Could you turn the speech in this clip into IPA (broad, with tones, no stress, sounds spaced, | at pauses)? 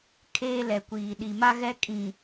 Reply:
kʰ eː˦ l ɛ˨ kʷ iː˨ ɗ i˨ m a˦ ɣ ɛ˦ kʼ ĩ˨